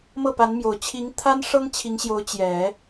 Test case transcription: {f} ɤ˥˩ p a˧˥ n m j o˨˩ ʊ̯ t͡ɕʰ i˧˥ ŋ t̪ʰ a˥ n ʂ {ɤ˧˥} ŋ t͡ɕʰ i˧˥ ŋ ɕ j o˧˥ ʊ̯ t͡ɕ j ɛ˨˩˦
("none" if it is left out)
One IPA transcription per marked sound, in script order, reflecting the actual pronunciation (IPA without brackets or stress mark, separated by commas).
m, ɤ˥